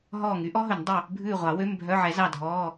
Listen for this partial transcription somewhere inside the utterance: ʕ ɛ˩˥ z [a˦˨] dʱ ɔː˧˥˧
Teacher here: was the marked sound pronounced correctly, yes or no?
no